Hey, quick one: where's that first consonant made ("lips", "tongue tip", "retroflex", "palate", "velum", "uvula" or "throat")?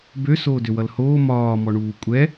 lips